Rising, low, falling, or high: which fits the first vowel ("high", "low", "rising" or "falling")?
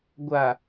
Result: low